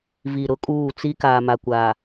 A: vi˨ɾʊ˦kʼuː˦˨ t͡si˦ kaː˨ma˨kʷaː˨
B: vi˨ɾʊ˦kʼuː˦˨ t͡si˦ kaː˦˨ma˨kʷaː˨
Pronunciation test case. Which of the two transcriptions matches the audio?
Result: A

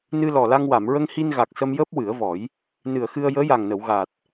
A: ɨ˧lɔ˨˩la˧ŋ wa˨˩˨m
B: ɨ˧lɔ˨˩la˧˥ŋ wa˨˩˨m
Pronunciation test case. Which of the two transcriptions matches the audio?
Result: A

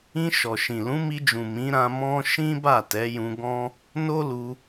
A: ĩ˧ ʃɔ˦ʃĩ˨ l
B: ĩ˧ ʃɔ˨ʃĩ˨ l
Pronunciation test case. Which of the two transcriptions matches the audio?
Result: B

